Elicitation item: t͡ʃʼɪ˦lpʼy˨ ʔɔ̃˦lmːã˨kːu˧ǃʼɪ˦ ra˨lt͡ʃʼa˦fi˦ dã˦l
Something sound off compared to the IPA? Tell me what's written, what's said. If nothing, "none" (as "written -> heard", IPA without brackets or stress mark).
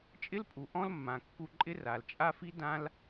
y˨ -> u˨